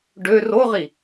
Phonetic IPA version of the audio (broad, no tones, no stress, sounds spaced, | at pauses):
ɖ ø r o ʁ i